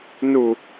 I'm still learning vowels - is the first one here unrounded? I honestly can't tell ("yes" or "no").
no